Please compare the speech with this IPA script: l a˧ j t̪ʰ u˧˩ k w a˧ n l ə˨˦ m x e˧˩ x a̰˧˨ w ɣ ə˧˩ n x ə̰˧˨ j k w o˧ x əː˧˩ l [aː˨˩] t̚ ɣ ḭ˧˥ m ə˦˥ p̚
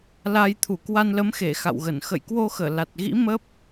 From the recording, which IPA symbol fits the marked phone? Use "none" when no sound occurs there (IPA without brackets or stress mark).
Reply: a˨˩